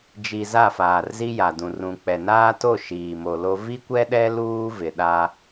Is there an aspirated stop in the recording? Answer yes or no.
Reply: no